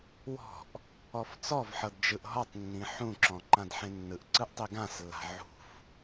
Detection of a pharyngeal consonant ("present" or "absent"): present